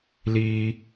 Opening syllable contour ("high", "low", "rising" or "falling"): high